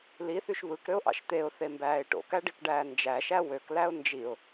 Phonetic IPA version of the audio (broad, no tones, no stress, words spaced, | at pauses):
liθyʃ βɯkɾøʊ̯ʔɑ̰ʃ t̪eʊ̯θembæːɪ̯ ʈo̰kæɖikɖæː nd͡ʒæʃæ wøklæʊ̯ nd͡ʒiʊ̯